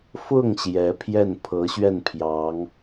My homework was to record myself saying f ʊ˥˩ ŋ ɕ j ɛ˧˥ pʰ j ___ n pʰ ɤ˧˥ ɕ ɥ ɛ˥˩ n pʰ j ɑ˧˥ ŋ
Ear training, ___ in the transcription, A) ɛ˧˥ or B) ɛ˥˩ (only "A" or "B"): B